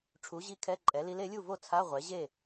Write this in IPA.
ʈ͡ʂʰu˩˥ʑi˧˥ kʰɛ˧˥˧ǃʼɛ˩˥li˧˥l e˩˥lʲu˥˩vo˥˩ t͡sʰa˧˥˧ ʁʷɛ˩˥ ʑe˥˩

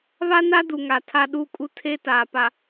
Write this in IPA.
βa˦na˦ du˨ŋa˨ tʰa˦ɗuː˦kʼu˦ tʰe˦taː˨ pa˨

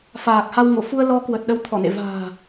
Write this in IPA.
faː˨˩k̚ha˧wŋo˧˩ fu˧ə̯ lɔ˨˦ kwə˨˩t̚ ɗə˨˦w t̪ʰɔ˧˩nḛ˧˨ va̤ː˨˩

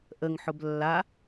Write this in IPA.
ʔəŋħʊb lːa

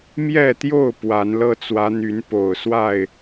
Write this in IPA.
mjɛ˥˨t̪jo˥˨ʊ̯ pwa˨˦nlɤ˦ t͡swä˨˦n̪y˨˦npo˨˩ʊ̯ swa˥˨ɪ̯

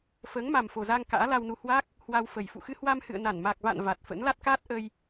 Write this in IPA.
fəː˨˦ŋ ma˨˩mfo˨˩zaː˧ŋ ka̰ː˧˥la˧wnu˧ hwa˦˥k̚ | hwa˧wfə˨˩j fṵ˧˨xɨ˧hwa˧m hɨ̰˧˨ə̯na˧˩n ma˨˩k̚va̰˧˨n va˨˩t̚ fə̰˧˥n la˦˥t̚kaː˦˥t̚ ʔə˧j

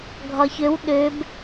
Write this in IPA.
ɡʱɒçøw ɗøb

